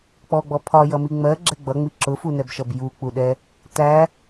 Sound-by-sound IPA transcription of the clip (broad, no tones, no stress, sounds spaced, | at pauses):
k͡p ɔ ɡ͡b ɔ pʰ ɒ j ʌ m i ŋ͡m ɜ ɡ͡ǁ ɛ ɡ͡b ʌ ŋ͡m i ǁ ʊ f u n ɛ b ʃ ʌ b j u k͡p u ɗ ɛ | t æ